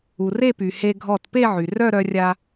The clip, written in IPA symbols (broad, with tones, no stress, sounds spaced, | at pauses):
u˩ r e˥˧ p y˩ h e˧ ɡʱ ɔ˧˩ t p e˥˧ ʕ y˩ r œ˥˧ ɾ œ˧ rʲ a˧